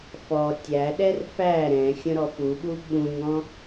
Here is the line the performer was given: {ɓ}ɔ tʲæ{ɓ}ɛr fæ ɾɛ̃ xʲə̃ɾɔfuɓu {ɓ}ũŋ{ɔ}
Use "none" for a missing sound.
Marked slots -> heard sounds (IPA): f, ɗ, ɓ, ɔ̃

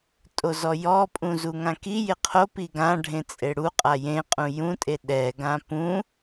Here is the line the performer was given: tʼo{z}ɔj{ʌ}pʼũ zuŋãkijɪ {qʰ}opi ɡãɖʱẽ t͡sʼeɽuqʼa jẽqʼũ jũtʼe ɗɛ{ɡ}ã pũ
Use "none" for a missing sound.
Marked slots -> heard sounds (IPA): z, ɔ, qʰ, ɡ

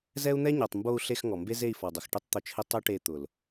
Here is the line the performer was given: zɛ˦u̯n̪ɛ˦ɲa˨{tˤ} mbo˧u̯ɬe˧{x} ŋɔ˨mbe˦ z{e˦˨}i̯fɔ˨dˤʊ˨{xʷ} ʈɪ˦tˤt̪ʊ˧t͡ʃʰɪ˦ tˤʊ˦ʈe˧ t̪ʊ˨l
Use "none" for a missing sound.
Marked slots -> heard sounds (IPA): tˤ, x, e˦˨, x

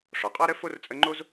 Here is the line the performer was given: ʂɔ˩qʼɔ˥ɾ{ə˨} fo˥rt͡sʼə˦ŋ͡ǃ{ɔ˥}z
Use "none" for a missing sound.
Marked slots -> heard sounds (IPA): ə˥, o˥

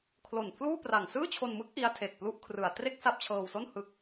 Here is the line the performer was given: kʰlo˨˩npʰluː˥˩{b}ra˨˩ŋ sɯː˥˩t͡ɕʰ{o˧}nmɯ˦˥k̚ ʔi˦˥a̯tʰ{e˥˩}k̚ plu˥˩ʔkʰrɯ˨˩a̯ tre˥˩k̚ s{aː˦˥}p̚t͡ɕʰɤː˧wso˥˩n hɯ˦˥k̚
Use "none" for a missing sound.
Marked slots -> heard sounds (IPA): p, o˧, e˨˩, a˦˥

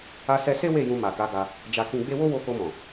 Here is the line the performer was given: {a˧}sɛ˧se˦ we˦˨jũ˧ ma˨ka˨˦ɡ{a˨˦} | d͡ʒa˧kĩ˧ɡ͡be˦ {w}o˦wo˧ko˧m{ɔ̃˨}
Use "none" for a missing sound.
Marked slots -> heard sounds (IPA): a˧, a˧, w, ɔ̃˨

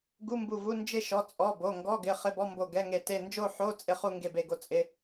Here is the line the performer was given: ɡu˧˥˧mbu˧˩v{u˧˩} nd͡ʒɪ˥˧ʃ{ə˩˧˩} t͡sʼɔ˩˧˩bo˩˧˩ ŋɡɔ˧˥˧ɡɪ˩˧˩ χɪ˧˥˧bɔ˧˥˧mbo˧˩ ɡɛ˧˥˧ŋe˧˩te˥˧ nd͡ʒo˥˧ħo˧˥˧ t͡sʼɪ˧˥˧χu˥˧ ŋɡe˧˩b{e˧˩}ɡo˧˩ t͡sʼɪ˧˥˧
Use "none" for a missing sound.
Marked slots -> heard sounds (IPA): u˧˥˧, ɔ˩˧˩, e˧˩

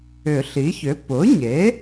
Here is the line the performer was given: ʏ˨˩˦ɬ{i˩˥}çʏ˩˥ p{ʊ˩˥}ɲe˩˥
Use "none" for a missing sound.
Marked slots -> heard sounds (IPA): i˩˥, ʊ˩˥

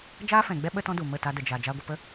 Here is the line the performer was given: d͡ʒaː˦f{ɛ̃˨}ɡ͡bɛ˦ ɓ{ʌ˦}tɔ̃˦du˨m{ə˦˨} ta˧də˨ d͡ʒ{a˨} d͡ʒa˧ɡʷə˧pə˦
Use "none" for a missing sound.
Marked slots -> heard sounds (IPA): ɛ̃˨, ə˦, ə˦˨, a˨

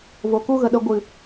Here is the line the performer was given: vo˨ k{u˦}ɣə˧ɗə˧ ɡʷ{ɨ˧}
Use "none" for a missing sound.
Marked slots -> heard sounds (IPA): u˦, ɨ˨

